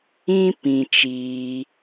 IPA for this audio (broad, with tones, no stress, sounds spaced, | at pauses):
ĩ˦ p ĩ˨ t͡ʃ iː˧